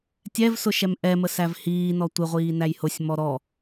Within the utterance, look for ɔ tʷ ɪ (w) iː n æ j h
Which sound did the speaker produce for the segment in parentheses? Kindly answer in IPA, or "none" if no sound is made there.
ʁʷ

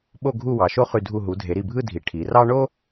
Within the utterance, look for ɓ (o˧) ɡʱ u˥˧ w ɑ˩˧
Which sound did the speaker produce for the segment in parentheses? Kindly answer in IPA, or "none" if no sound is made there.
o˥˧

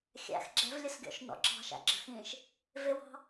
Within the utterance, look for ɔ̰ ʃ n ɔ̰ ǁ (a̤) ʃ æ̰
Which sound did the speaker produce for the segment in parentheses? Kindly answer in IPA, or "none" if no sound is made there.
ɑ̤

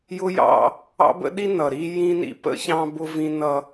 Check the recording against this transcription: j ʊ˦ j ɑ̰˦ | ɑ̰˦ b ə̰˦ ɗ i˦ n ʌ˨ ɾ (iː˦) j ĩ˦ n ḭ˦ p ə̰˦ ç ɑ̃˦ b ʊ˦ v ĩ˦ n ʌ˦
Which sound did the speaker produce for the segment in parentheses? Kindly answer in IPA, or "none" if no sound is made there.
i˦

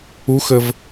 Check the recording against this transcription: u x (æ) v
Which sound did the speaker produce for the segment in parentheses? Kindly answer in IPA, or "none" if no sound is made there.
ə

